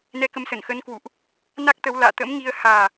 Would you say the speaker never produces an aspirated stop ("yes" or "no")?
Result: yes